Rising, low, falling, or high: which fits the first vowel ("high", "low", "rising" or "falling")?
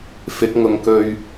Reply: rising